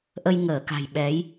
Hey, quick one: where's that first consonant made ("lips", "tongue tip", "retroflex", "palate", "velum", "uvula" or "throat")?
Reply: throat